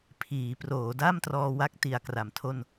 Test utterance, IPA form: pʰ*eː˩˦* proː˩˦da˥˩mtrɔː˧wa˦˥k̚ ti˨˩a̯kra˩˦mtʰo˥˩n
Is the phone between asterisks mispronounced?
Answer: yes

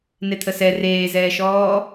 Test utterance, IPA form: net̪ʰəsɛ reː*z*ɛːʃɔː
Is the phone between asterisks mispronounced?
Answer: no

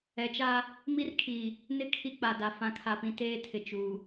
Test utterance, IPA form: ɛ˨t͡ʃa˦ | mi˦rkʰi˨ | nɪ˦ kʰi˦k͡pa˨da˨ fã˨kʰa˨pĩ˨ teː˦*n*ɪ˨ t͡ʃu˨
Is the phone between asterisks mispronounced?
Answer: yes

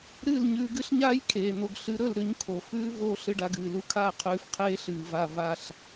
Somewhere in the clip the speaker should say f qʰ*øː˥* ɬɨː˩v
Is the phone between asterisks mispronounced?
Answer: yes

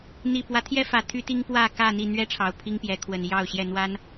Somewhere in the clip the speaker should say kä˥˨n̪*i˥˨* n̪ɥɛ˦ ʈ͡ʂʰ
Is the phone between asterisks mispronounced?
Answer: no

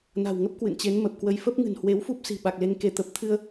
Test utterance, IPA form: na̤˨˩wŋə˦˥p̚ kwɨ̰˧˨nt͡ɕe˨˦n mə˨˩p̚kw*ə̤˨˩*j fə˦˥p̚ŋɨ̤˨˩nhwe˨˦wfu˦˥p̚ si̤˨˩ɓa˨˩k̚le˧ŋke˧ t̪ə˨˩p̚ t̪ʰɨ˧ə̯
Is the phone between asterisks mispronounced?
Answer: yes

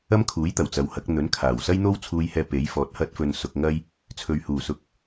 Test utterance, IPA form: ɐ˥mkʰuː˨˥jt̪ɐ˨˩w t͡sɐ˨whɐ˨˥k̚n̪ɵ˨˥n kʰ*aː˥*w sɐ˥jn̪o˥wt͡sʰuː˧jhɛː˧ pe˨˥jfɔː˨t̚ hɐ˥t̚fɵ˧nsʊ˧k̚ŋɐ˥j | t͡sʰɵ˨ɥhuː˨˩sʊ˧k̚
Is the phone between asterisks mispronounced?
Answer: yes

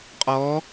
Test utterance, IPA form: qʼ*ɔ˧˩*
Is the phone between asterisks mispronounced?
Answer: yes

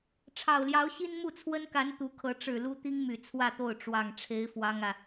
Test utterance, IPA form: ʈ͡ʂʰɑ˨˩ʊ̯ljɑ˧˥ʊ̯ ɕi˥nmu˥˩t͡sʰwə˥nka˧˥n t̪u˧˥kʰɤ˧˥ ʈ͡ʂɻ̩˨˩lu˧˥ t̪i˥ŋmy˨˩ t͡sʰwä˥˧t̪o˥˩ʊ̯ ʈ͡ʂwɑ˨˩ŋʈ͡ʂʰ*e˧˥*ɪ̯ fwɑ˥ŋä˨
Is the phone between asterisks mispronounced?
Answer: no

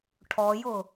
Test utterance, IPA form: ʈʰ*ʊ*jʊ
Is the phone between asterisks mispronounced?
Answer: yes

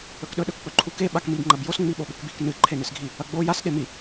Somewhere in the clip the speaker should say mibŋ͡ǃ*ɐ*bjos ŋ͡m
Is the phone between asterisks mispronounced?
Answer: no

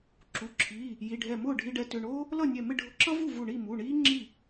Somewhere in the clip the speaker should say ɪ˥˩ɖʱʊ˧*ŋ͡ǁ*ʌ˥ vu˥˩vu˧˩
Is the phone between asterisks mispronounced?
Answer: yes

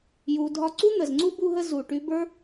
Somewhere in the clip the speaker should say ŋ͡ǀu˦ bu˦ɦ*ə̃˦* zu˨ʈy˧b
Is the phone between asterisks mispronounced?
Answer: yes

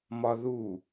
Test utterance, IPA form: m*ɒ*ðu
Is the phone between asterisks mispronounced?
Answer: no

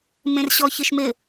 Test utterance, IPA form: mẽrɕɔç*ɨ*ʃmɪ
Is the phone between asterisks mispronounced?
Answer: no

